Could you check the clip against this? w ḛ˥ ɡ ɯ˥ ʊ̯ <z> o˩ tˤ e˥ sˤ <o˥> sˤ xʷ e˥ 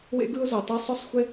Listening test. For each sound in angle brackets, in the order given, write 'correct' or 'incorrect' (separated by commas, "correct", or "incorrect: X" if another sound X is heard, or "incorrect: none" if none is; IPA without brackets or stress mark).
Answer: correct, correct